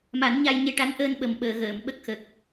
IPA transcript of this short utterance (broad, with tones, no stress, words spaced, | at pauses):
ma˨˩˦nɲa˧j ɲe˧ʈa˧˥n ʔəː˧nɓə˨˩mɓəː˨˩˨ ɣəː˨˩˨m ɓə˦˥k̚xə˨˩k̚